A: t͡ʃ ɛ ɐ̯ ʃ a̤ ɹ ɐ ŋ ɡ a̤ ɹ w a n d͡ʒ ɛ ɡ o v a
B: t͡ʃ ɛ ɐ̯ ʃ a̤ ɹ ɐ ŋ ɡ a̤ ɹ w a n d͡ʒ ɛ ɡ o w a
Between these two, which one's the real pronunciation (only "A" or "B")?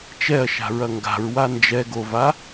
A